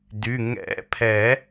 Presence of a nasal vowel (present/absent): absent